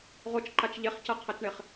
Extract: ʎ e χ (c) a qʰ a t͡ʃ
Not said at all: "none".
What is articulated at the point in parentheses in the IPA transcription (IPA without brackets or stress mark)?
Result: c